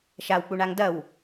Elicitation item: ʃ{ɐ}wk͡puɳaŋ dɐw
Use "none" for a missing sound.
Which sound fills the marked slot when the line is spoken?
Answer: a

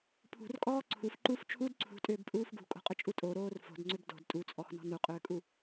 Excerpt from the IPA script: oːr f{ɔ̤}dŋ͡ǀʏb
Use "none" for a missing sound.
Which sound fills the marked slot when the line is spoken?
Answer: o̤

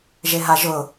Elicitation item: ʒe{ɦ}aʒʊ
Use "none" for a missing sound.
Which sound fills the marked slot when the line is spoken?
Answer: ɦ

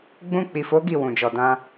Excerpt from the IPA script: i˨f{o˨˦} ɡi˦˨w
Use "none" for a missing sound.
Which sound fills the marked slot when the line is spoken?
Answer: o˨˦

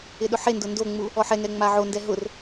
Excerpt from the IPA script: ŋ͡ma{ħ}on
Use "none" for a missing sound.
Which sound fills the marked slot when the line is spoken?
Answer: ʕ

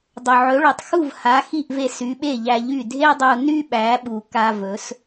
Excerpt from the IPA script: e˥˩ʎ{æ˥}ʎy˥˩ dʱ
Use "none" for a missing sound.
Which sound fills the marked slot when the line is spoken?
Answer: æ˧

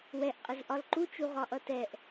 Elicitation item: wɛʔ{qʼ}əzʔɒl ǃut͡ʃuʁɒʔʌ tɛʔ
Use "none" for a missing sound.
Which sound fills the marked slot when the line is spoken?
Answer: qʼ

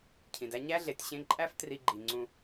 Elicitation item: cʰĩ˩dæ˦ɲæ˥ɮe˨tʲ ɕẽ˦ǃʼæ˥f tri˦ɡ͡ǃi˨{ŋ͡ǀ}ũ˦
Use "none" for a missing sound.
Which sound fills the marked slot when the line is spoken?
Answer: ŋ͡ǀ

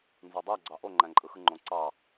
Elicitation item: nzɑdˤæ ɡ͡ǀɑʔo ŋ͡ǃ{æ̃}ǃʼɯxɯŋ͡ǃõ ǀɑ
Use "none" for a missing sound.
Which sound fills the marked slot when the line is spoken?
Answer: æ̃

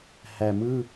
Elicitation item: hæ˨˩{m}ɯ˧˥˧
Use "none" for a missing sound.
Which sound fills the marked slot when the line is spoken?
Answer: m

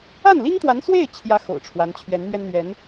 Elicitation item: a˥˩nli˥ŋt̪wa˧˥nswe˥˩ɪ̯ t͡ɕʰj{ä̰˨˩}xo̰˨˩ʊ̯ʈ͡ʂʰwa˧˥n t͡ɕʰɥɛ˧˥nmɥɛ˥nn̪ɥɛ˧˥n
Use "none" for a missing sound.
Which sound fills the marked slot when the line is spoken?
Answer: ä˥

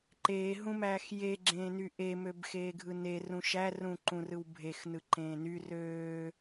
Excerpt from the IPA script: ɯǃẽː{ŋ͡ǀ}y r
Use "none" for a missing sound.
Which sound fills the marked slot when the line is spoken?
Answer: n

